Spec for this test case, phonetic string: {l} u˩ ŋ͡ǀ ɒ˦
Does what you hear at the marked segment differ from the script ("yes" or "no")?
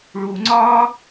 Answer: yes